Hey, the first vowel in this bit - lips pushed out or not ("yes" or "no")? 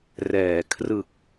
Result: no